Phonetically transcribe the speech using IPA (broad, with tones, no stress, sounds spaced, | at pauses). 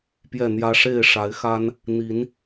p j ɛ˥˨ n̪ j ä˦ ʂ e˥˨ ɪ̯ ʂ a˨˦ ɪ̯ x a˦ n | n̪ i˨˦ n